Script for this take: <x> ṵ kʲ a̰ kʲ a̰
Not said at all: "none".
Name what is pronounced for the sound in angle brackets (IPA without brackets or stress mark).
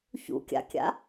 ç